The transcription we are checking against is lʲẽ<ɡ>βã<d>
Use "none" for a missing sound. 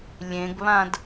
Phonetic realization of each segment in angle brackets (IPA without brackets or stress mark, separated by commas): ɡ, d